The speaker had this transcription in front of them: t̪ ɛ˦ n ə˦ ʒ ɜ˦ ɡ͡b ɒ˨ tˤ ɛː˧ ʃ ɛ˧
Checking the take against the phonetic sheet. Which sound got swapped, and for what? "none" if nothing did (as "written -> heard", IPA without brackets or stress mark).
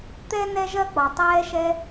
ə˦ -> ɛ˦